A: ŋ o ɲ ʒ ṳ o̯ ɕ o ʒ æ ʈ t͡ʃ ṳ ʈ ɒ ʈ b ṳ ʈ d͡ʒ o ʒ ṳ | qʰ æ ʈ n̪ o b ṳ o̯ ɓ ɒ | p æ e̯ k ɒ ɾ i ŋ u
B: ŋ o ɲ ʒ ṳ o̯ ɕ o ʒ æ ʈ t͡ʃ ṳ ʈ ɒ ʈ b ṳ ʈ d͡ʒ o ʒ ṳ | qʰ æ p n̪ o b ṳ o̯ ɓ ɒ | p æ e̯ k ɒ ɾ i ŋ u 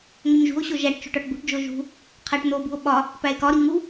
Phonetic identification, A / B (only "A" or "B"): A